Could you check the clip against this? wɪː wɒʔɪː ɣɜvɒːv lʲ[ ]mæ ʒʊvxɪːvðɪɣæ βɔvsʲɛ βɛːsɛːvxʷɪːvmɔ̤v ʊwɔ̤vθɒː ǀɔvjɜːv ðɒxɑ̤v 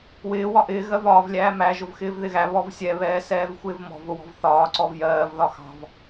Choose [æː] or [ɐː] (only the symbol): æː